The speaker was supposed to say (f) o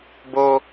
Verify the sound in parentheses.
incorrect: b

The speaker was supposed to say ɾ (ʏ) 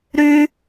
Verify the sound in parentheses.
incorrect: y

